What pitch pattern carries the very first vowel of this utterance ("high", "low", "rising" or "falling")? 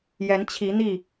rising